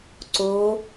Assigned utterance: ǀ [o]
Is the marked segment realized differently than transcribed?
no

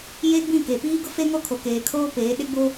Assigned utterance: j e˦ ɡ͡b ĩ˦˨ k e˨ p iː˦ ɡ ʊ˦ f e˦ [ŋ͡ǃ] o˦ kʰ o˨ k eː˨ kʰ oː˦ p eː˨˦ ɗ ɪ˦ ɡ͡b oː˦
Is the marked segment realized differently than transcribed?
yes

